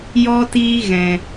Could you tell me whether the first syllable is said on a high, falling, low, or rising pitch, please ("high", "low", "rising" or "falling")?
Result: high